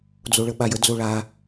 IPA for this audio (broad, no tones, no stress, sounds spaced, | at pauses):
d͡z o ɭ ə ɓ a j ə d͡z o ɭ a